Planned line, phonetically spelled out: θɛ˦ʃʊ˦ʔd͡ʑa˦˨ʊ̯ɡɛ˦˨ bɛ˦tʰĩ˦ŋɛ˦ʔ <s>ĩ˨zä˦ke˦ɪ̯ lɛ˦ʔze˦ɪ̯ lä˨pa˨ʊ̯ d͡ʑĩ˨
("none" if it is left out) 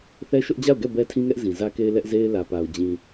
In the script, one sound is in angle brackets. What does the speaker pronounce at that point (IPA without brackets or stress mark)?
z